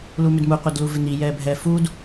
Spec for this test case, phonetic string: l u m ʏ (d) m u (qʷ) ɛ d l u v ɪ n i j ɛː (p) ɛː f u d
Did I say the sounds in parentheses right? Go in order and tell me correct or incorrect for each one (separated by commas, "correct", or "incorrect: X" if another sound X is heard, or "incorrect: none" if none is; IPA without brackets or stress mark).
correct, correct, incorrect: bʱ